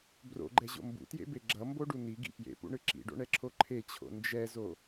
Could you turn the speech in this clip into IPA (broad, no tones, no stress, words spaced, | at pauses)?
bro̰ɡ͡ǃɛʑo̰ mbṵtjḛbe ɡ͡ǁʌmboɖu niɡḭ pjḛpṵɳɯ ǁḭɖo̰ɳɛǁʰo ǃʰet͡ɕʰo̰ nd͡ʒɛzo